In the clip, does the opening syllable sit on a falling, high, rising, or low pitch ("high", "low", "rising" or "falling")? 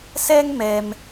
high